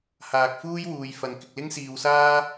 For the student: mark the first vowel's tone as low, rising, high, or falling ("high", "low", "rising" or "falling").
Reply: low